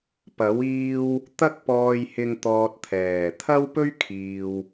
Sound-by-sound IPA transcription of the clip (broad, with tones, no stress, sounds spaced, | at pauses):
p ɐ˨˥ w iː˧ w | t̪ ɐ˥ k̚ p ɔː˧ j h ɪ˧ ŋ t̪ ɔː˧ t̚ t̪ʰ ɛː˨˩ t̪ʰ ɐ˥ w p ɵ˥ ɥ kʰ iː˨ w